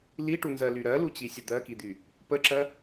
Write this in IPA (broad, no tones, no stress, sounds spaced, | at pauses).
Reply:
l i ʈ u n z ɜ l y ɾ ɜ l u t͡ɕ i sʲ ə d̪ ɜ k i d̪ y | p ə ǁ ɜ